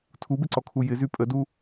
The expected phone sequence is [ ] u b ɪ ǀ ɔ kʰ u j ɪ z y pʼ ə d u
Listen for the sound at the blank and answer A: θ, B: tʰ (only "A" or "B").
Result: B